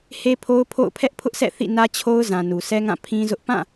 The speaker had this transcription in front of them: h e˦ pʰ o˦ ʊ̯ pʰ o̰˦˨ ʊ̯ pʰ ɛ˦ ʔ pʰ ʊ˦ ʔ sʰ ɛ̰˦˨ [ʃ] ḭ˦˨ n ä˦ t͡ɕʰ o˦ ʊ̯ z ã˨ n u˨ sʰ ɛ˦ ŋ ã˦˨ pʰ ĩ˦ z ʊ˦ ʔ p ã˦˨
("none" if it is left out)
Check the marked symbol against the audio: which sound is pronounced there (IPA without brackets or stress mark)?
θ